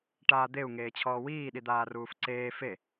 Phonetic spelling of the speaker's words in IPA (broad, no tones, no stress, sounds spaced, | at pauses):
ʈ aː d̪ e u̯ ŋ eː t͡ɕʰ ɔː w iː ɗ i d̪ aː r uː f ǀ eː f e